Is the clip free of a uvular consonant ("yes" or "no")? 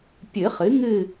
no